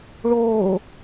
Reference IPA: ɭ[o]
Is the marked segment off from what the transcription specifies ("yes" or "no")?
yes